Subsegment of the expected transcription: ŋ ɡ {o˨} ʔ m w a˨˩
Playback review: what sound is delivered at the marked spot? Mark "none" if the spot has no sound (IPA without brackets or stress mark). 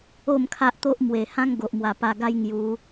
o˨